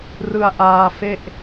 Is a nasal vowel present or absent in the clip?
absent